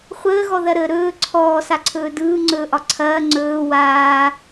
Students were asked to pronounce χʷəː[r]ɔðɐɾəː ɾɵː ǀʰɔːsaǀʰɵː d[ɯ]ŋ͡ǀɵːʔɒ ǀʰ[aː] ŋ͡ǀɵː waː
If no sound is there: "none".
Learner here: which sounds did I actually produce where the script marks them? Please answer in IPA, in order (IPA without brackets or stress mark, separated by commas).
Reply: ɣ, ɯː, ɐː